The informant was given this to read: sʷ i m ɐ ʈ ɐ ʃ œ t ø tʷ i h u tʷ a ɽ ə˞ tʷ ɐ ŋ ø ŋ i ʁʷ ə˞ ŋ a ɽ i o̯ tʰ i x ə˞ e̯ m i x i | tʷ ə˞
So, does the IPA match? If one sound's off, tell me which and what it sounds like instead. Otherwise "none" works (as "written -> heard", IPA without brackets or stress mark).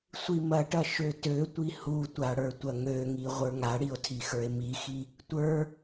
œ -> ø